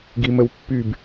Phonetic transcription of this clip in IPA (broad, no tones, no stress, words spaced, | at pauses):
ɡiməwpːyb